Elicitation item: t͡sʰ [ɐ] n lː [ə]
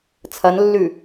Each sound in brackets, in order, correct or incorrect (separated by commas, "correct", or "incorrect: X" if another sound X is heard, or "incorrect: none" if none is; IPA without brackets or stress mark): correct, incorrect: ʉ